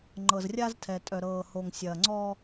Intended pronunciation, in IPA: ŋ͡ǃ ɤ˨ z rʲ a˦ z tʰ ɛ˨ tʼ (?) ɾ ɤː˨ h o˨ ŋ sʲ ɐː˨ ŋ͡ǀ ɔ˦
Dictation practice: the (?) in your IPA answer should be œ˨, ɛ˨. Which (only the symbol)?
œ˨